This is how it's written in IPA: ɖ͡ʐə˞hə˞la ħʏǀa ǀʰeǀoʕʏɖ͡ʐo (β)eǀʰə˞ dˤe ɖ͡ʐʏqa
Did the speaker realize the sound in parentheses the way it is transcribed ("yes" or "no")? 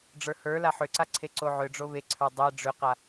yes